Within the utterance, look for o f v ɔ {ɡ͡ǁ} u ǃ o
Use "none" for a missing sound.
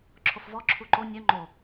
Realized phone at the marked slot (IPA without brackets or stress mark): ǁʰ